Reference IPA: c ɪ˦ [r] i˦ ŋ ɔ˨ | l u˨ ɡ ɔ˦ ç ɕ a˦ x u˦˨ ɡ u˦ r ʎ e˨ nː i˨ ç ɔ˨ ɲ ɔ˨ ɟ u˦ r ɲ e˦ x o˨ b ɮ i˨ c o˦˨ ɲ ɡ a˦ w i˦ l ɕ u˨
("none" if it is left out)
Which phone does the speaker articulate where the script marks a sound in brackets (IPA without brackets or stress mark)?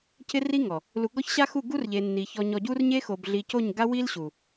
r